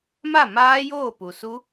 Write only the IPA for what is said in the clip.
ma˥˩ maː˦˥joː˥˩ pu˩su˦˥

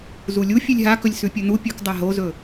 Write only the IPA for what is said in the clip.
zulʲu fʲʉlʲɦakɵlʲ sʉpʲɵnu pʲɵk dˤaɦozɵ

